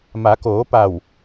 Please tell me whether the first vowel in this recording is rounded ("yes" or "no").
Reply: no